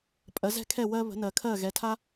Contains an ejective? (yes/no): yes